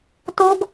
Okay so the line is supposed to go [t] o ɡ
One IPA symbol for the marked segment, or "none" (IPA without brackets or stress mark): t